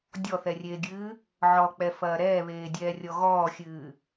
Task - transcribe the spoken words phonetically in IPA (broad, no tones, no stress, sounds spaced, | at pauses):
dʲ ɔ θ ɛ rʲ eː ɡʲ ɨː | ʕ ɔ k͡p ɛ f ɐː ɾ ɛː β eː dʲ ɛː rʲ ɔ ɣ ɔː xʲ ɨː